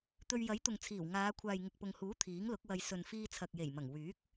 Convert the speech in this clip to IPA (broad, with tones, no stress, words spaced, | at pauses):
t̪ɵ˧ɥ jɐ˨˥jt̪ʊ˨ŋt͡sʰiː˨˩w ŋaː˨˧ kʷʰaː˨jŋɪ˨k̚pʊ˨ŋhuː˨˥ t̪ʰiː˨˥ŋlʊ˨˥k̚wɐ˧j sɵ˨n fiː˧t͡sʰɐ˨k̚je˨˩jmɐ˨˩ŋ wyː˨˥k̚